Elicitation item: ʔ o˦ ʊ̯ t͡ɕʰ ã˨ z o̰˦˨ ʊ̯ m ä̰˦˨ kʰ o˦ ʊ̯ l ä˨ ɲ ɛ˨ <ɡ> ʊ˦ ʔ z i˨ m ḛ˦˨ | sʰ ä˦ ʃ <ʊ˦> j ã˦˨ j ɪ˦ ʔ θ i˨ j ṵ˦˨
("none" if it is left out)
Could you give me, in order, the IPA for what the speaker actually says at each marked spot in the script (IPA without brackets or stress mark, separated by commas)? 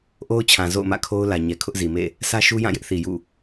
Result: kʰ, u˦